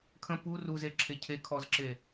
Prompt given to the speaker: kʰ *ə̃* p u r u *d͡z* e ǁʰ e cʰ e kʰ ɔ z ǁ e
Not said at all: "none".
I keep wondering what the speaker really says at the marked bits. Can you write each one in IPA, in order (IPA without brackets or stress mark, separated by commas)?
ə̃, z